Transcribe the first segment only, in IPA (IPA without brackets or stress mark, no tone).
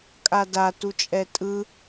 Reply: kʼ